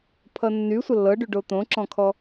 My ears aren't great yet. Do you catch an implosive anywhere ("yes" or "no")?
no